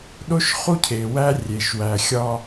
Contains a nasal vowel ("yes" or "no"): no